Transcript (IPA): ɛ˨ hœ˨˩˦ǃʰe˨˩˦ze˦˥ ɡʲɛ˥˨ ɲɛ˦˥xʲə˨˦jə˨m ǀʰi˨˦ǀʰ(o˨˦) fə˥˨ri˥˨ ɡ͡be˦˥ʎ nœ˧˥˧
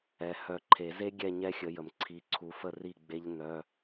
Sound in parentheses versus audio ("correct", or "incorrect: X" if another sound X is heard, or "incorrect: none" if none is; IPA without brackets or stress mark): incorrect: u˨˦